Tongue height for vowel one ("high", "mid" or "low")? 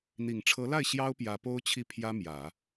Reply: high